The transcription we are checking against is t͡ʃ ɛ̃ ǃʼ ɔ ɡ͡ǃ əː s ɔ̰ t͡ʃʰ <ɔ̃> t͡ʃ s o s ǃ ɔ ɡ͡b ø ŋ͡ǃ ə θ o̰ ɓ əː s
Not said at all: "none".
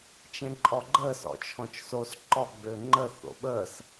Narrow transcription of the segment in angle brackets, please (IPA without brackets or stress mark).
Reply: ɔ̃